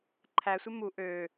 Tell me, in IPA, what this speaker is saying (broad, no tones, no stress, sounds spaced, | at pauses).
ǃʰ æ sʷ e m u ʔ ø